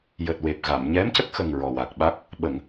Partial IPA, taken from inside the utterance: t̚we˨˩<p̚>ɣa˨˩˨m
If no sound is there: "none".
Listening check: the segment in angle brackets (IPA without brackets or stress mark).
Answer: p̚